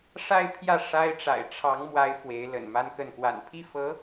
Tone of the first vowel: falling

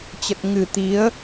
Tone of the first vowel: low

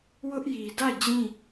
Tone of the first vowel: high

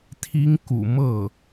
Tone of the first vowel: high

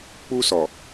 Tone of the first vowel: high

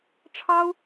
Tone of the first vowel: high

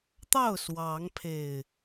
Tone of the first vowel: falling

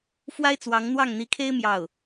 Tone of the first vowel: high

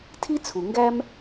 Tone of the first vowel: high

